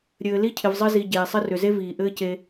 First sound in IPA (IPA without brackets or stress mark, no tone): ɾʲ